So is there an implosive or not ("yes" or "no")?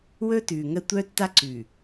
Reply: no